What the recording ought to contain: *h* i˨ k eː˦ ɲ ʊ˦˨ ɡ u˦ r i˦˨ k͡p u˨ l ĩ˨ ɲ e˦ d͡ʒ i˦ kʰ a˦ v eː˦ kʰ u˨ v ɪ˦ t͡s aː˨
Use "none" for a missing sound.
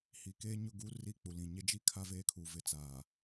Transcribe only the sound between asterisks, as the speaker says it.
h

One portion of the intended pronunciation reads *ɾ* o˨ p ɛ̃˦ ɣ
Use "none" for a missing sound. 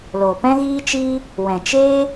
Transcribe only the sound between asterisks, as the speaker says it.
l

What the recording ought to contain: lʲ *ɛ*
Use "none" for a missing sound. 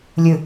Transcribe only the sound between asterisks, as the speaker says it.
ɨ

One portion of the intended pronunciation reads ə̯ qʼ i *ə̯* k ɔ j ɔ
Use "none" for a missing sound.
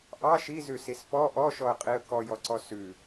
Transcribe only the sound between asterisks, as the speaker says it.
ə̯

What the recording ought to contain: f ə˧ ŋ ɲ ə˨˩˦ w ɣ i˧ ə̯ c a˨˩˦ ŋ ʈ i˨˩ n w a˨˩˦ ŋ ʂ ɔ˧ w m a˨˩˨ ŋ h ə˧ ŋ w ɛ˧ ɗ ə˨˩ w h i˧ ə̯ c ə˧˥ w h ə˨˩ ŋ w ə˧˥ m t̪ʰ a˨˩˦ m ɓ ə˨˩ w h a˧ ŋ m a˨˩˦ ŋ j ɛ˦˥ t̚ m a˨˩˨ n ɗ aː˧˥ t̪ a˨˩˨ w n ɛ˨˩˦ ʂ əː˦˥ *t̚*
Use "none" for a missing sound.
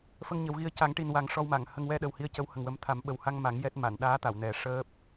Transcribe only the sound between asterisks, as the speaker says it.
p̚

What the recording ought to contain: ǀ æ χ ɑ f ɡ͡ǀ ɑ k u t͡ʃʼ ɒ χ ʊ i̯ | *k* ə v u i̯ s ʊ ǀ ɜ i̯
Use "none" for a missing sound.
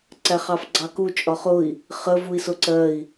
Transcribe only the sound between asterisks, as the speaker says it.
χ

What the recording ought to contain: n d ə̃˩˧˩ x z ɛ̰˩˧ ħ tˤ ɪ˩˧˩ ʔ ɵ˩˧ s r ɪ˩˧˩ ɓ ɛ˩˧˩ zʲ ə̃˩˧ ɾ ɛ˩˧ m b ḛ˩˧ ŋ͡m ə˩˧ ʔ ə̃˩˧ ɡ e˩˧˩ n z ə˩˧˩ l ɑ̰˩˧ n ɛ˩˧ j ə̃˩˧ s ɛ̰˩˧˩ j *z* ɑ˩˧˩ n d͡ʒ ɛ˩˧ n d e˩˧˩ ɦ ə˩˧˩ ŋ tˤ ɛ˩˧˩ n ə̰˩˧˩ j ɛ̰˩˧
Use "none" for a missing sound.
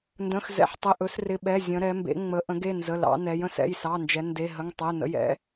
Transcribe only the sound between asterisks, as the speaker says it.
s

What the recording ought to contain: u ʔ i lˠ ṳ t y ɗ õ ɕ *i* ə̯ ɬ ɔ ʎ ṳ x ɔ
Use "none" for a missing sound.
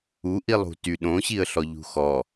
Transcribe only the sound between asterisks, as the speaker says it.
i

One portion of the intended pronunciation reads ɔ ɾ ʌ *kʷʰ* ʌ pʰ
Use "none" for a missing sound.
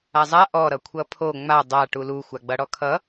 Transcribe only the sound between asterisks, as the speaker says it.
kʷʰ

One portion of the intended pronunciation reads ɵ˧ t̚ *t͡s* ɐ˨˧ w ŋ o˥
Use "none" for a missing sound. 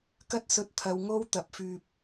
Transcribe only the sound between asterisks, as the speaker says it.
t̪ʰ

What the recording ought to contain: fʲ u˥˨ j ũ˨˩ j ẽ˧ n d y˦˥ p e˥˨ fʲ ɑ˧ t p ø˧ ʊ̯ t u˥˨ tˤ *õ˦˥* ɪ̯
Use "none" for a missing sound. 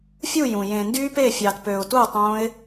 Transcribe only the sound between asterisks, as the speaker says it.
õ˦˥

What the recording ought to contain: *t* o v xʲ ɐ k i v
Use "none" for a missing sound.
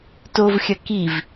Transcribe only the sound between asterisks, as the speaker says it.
t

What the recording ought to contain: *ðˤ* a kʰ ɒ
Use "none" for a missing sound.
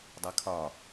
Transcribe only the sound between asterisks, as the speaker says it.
dˤ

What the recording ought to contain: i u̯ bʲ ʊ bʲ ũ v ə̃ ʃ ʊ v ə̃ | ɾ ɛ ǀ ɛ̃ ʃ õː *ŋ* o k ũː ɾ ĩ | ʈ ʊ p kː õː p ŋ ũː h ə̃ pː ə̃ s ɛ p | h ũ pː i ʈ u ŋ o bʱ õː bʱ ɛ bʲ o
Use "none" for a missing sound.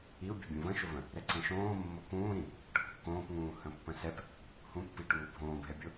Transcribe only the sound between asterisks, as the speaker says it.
mː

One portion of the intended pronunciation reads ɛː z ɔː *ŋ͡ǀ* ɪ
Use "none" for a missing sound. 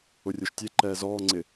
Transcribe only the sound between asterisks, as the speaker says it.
ŋ͡ǀ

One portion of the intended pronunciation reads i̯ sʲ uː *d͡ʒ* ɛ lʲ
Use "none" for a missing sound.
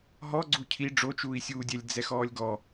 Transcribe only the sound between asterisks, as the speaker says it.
dʲ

